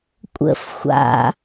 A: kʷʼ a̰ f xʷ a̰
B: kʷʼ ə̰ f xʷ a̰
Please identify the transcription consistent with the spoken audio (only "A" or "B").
B